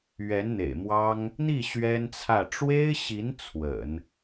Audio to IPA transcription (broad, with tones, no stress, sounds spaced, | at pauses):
ɥ ɛ˧˥ n n̪ ḛ˨˩ ɪ̯ m w ɑ˥ ŋ | n̪ i˥˩ ɕ ɥ ɛ˥ n t͡sʰ ä˥˩ ʈ͡ʂ w e˥ ɪ̯ ɕ i˧˥ n t͡sʰ w ə̰˨˩˦ n